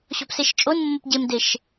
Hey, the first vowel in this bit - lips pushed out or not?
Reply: yes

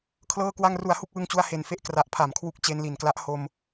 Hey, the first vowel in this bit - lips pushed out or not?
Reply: no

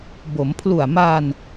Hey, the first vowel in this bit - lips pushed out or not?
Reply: yes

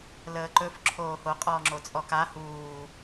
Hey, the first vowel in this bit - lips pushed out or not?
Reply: no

